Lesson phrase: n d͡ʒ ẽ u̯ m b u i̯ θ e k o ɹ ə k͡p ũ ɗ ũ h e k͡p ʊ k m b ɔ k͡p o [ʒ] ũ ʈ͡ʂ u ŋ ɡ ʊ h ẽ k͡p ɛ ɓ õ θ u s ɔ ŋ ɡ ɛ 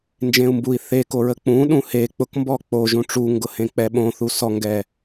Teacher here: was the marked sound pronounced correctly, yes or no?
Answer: yes